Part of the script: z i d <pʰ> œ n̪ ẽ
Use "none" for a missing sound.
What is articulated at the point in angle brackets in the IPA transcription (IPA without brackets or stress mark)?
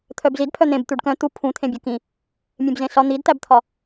pʰ